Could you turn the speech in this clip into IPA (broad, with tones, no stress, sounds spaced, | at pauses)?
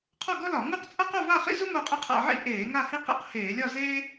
qʰ ɔ˥˧ ɡ ɔ˥ l ɒ˧˩˧ ŋ u˥˧ q t͡sʼ ʌ˥ q o˥˧ v a˥˧ χ ḭ˥ z u˥ m o˥˧ qʼ e˥ qʰ a̰˥˧ ʕ ḭ˥˧ ʔ eː˧˩˧ ŋ a˥˧ h i˥ q ḭ˥˧ q h eː˧˩˧ lʲ ɒ˥˧ z eː˥